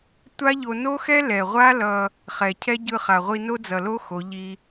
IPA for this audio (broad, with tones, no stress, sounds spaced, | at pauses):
tʷ a˦ ʎ o˧ n o˦ x ɛ˦ l ɛ˨ ʁʷ a˦ l ʌ˧ | χ ɛ˨ cʰ ɛ˦ ɟ ɯ˧ χ a˨ ʁʷ i˧ n o˦ d͡z ʌ˨ l o˦ x o˨˦ ʎ i˦